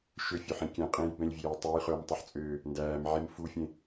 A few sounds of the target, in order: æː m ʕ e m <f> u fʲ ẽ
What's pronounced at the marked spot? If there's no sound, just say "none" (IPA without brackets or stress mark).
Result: f